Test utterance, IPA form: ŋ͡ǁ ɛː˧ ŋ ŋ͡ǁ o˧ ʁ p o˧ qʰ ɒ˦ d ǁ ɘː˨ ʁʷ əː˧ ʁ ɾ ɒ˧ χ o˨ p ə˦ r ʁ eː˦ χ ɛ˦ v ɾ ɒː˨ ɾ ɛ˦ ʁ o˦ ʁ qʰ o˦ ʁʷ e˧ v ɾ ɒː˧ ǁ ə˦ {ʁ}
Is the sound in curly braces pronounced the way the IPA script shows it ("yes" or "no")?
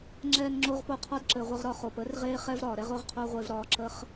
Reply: no